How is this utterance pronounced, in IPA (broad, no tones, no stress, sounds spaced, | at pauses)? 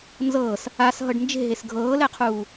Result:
n z ɤː s | a s ɦ ɤ ɖ n d͡ʒ e̤ ɦ e s ɡʱ ɤː l ɛ qʰ uː